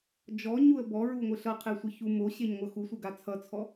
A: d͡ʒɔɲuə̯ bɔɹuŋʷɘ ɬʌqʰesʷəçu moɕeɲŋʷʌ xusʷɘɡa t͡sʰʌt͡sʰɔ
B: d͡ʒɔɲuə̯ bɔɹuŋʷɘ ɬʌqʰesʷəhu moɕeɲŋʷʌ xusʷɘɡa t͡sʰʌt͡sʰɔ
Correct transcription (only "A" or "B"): A